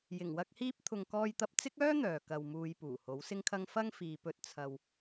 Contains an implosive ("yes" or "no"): no